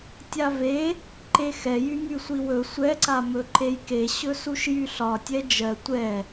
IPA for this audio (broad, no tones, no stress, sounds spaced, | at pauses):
tʲ a v e | ǃ e x ɛ j y m y sʷ i w ɵ sʷ ɛ ǀ a m ɵ ǃ e j k e ɕ ɵ s u ʃ j y ɬ ɒ tʲ ɛ d͡ʒ ɜ tʷ ɛ